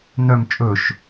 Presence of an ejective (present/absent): present